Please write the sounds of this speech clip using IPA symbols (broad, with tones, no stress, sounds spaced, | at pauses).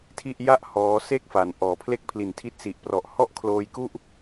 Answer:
tʰ i˥˩ ʔ j a˥˩ ʔ h ɔː˦˥ s e˥˩ k̚ f a˩˦ n ʔ ɔː˩˦ pʰ l e˥˩ k̚ pʰ l i˨˩ n tʰ i˦˥ t̚ s i˨˩ ʔ p r ɔ˨˩ ʔ h ɔ˥˩ ʔ kʰ l oː˧ j k u˥˩ ʔ